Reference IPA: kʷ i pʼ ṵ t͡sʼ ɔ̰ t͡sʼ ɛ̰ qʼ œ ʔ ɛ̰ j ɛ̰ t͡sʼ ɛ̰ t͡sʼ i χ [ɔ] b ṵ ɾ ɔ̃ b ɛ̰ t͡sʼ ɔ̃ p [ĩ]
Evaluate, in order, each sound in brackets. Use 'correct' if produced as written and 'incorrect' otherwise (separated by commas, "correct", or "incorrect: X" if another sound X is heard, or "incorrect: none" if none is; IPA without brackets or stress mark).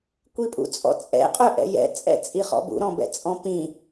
incorrect: ɔ̰, correct